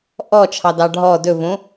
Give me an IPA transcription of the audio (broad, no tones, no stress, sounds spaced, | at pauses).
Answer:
ʔ ɔ t͡ʃʰ ɑ d ɑ ɖʱ ɔ d ɵ v õ